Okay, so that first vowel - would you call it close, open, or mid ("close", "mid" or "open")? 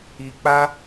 close